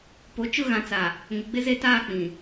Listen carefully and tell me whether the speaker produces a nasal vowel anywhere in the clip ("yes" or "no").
yes